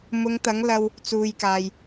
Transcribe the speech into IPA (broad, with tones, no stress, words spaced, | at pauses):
mʊ˨˧ŋt̪ɐ˨˥ŋlɐ˧w | t͡suː˨jkaː˨j